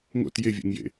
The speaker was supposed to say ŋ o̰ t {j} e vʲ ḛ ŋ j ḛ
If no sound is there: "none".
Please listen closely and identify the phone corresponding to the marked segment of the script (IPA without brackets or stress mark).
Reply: j